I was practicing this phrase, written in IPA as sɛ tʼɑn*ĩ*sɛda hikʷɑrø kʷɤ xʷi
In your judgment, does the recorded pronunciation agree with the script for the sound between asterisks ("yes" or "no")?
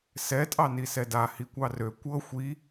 no